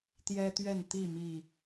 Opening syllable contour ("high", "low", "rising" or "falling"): high